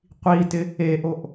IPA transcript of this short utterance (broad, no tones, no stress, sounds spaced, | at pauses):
qʷ i t ɪ | e ʔ o ʔ